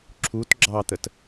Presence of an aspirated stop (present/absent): present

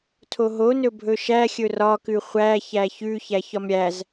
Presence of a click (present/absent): absent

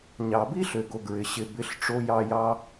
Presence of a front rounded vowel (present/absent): present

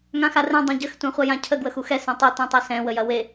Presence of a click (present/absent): absent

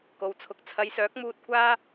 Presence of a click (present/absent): absent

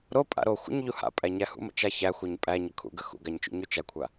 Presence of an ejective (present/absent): present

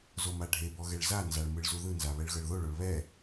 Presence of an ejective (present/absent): absent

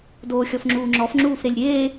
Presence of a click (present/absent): present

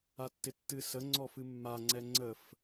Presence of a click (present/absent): present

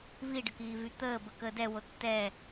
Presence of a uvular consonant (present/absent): absent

